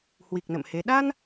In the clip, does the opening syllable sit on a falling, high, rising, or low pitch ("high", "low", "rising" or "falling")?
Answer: low